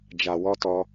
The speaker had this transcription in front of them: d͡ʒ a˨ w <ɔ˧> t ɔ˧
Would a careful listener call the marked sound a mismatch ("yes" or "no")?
no